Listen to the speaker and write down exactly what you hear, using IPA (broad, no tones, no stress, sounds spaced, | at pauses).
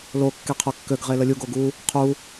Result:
l o kː e qʰ o kː ø ɡ ʁ e l ə lʲ u ɡ o ɡ u | qʰ u